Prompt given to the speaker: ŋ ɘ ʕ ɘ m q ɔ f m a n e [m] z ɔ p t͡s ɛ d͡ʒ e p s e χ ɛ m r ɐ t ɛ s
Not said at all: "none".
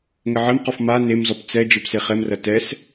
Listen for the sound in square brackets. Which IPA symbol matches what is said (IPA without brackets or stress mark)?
m